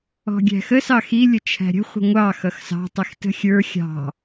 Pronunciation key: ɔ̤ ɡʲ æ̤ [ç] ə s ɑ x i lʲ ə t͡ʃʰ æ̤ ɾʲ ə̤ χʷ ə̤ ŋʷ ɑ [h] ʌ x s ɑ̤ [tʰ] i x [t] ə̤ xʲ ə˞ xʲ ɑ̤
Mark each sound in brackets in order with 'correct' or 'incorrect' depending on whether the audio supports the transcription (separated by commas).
incorrect, incorrect, incorrect, correct